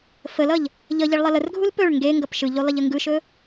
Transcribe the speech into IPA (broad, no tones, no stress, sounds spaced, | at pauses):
f ə l ʌ ʎ | ʎ ʌ ʎ e ɭ lˠ ʌ l ə r ɡʱ u l p ɵ ɭ ŋ ɡ e ŋ ɡ ʌ p ʃ ɯ ʎ u lˠ e ʎ ə ŋ ɡ ɯ ʃ ɵ